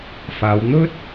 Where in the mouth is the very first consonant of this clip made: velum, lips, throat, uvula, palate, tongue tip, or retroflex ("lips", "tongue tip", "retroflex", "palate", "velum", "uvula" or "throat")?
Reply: lips